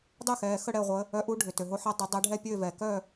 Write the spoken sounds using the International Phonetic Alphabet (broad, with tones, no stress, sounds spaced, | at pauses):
dˤ ɛ˥˨ x ɛː˩˧˩ x ə˥˨ ɽ ɛ˥˨ ʁʷ əː˨˦ | œ˨˦ ʔ u˨˦ ɖʱ ʏ˩ t ø˩ ɦ o˨˦ ħ ɐ˨˦ dˤ ʏ˨˦ dˤ ɛ˨˦ ɖʱ ɛ˥˨ pʲ øː˥˨ v ɛː˩ k œː˥˨